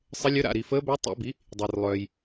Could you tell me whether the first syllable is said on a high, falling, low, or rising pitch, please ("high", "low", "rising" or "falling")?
rising